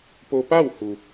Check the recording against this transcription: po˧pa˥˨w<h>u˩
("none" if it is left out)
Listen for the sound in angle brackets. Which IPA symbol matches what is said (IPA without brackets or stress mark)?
h